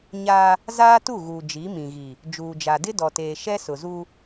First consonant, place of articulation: palatal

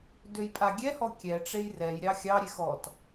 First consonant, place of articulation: alveolar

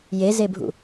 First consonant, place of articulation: palatal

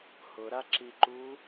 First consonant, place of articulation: glottal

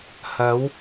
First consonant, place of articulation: glottal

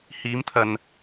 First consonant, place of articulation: glottal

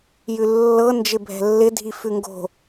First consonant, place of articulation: palatal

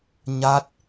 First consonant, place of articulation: palatal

